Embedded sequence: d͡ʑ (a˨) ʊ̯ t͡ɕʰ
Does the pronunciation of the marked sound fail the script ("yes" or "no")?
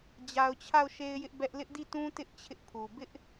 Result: no